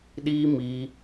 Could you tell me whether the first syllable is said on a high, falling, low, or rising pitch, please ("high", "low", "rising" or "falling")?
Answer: high